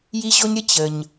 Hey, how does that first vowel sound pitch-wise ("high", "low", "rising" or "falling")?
high